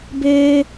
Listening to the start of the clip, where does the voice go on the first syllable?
high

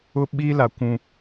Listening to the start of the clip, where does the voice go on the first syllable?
high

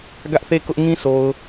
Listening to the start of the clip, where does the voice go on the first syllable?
high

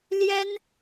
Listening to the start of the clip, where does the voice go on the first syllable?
high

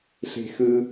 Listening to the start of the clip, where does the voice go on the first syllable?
low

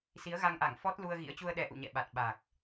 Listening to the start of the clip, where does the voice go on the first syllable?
rising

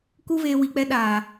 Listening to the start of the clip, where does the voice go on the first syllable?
high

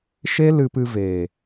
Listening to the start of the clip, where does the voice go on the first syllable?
high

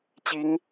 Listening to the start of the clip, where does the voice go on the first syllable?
rising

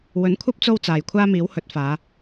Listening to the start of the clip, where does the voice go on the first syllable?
rising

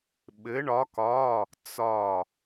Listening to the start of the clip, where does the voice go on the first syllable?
rising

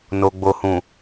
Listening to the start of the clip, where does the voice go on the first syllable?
low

